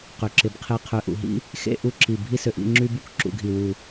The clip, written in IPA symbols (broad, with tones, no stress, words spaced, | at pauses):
qʏ˩˧ǁɪ˩˧bqʰe˧ qʰø˧ʔṵ˧˩ɦḭ˥ | xḛ˥˧ʔu˥˧ǁi˧˩ bʱi˥sø˧ʔḭ˥˧ ŋ͡ǁy˥bu˥k ǁṵ˧ɡʱi˧˩wu˧˩